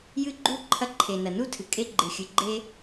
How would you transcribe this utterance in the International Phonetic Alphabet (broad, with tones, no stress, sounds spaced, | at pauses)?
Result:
j ɨ˥ ɡ͡ǃ u˥ ǃʰ ɐ˥ ǃʰ e˩ n ɐ˩ n u˥ tʰ ɨ˩ kʼ e˥ ɡ͡ǃ ɨ˩ xʲ ɨ˩ ɡ͡ǃ e˥